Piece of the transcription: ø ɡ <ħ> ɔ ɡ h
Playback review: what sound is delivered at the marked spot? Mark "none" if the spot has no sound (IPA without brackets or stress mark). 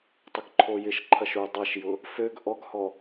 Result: ʔ